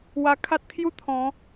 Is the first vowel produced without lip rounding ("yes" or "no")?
yes